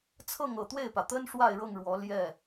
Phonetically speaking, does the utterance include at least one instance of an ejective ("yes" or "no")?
no